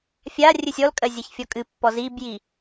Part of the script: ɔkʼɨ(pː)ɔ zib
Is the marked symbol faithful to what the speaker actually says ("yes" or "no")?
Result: yes